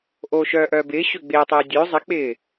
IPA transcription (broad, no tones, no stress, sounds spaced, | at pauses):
ʔ oː ʃ œː ʔ œː b ɪː ɕ ø ɡ͡b ɪː tˤ ɪː dʲ ø zˤ ɪ k͡p ɪː